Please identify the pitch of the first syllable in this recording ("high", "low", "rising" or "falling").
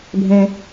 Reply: low